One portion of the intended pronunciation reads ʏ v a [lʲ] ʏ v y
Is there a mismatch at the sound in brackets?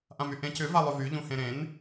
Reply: yes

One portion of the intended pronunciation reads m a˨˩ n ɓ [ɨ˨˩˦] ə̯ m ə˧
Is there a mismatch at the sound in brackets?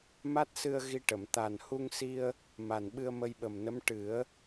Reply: yes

